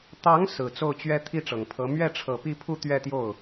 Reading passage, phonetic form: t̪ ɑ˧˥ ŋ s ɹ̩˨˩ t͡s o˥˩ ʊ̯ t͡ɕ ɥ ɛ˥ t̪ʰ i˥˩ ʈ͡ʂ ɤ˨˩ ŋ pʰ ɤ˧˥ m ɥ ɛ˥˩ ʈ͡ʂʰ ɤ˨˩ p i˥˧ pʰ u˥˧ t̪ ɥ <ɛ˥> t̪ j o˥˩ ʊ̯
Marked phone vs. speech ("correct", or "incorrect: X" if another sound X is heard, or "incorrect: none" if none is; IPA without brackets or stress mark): incorrect: ɛ˥˧